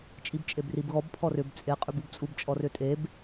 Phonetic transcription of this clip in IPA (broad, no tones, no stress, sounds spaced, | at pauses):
t͡ʃʼ i b t͡ʃʼ e b r i b ɣ ɔ b pʰ ɔ r ʏ b t͡sʼ e qʼ y b u b t͡sʼ u b t͡ʃʼ ɔ r ʏ tʼ e b